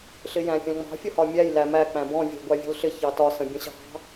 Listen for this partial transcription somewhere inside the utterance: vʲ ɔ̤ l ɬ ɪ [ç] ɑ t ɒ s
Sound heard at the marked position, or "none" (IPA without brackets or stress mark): ç